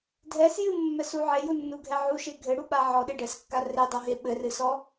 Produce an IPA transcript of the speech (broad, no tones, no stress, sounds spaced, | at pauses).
dʱ ɛ s j ɨ mː ɛ s u ʕ e j u nː u ɡʱ ɛ ʕ u ʃ e ɡʱ ɘ ɽ u ɓ a ʕ ɔ ɗ e ɖ ɛ s kː a r e dˤ o ɦ e ɓ ɘ r ɨ s ɔ